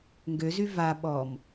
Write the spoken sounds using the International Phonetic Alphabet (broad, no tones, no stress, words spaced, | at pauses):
ŋɡøzy va ɓɔm